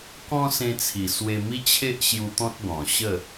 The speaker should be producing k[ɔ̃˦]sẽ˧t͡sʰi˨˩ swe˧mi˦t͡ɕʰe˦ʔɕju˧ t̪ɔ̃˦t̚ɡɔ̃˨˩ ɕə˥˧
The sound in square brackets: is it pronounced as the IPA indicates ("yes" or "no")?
yes